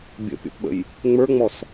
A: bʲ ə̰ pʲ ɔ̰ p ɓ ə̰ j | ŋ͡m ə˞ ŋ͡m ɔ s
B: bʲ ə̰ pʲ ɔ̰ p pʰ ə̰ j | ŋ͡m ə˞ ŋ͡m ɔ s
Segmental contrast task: A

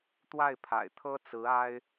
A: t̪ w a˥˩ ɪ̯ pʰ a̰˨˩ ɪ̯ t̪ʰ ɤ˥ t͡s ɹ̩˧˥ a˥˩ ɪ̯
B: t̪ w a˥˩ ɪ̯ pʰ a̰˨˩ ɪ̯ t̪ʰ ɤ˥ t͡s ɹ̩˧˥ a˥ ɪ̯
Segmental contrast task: B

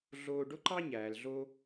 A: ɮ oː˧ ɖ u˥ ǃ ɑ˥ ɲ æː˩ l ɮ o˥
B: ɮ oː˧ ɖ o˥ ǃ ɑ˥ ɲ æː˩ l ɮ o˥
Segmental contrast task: B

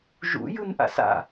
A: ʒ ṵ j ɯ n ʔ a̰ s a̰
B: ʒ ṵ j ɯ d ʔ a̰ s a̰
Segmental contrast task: A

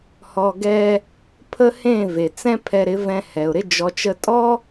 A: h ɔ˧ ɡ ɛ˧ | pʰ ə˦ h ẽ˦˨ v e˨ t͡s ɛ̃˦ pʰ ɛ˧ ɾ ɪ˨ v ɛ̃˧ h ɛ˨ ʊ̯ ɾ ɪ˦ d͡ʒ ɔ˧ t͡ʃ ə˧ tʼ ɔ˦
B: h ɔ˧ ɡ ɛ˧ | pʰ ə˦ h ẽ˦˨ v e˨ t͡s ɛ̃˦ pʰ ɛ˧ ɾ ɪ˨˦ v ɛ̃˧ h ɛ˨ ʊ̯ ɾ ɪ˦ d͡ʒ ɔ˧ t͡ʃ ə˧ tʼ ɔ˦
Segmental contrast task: B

